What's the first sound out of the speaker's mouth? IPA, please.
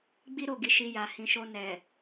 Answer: ɡ͡b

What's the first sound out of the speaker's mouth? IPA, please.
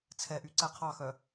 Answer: t͡sʰ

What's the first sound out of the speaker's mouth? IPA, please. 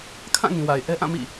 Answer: kʰ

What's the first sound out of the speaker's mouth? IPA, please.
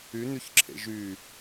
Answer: y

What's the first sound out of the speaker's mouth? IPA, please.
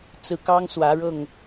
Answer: t͡s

